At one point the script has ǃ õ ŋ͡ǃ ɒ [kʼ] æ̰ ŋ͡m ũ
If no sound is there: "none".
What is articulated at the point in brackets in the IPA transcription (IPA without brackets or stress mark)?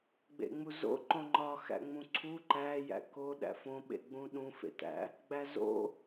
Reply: x